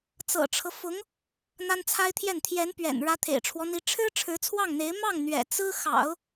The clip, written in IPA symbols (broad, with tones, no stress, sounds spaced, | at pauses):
t͡s ɤ̰˨˩ ʈ͡ʂʰ ɤ˦ f ʊ˧˥ ŋ | n̪ a˥ n t͡sʰ a˥ ɪ̯ t̪ʰ j ɛ˥˩ n t̪ʰ j ɛ˧˥ n p ɥ ɛ̰˨˩ n ɻ ä˧˥ t̪ʰ ḛ˨˩ ɪ̯ ʈ͡ʂʰ w ɔ˦ n̪ i˧˥ ʈ͡ʂʰ ɻ̩˥ ʈ͡ʂʰ ɻ̩˧˥ t͡sʰ w ɑ˥˩ ŋ n̪ e˧˥ ɪ̯ m ɑ˥˩ ŋ n̪ ɥ ɛ̰˨˩ t͡s ɹ̩˥ x ɑ̰˨˩˦ ʊ̯